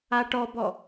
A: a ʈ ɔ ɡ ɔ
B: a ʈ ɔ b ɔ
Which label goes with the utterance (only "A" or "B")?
B